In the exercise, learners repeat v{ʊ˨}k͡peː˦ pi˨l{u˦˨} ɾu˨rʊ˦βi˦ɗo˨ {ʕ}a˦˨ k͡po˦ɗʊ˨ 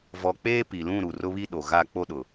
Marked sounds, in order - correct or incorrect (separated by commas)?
incorrect, incorrect, incorrect